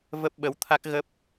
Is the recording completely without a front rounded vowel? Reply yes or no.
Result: yes